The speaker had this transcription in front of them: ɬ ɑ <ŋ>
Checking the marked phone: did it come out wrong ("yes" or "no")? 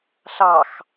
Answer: yes